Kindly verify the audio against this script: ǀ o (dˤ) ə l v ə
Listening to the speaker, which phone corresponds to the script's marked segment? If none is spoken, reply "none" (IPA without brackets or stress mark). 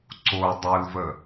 dˤ